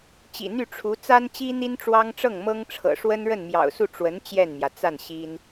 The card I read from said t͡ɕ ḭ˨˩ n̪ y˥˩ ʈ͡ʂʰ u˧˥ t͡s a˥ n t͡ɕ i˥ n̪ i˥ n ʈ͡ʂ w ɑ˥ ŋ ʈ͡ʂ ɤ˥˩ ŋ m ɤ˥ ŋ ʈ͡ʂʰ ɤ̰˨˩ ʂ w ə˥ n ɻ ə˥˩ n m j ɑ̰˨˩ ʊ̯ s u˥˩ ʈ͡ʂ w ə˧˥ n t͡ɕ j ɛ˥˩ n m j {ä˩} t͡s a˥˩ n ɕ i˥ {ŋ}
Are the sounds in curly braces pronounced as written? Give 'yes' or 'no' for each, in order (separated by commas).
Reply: yes, no